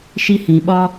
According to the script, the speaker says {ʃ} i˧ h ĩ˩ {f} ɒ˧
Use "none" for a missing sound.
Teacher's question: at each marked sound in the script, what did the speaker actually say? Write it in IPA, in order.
ʃ, ɓ

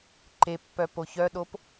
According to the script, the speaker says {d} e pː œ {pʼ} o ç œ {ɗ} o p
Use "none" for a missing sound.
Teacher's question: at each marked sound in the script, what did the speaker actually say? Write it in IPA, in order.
ǃ, p, ɗ

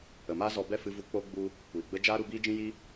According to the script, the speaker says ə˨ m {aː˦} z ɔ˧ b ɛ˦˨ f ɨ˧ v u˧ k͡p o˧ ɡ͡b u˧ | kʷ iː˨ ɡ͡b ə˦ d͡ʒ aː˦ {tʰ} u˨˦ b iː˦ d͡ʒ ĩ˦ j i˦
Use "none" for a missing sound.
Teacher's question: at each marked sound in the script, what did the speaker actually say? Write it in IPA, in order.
aː˦, ɾ

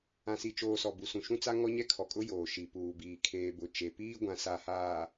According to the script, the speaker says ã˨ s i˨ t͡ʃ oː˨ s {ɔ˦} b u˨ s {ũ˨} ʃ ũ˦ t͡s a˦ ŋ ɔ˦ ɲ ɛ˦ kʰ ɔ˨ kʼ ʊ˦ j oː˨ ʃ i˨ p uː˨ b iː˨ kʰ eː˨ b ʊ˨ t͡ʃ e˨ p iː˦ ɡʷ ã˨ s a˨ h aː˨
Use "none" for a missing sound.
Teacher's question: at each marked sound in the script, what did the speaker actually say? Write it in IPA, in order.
ɔ˨, ũ˨

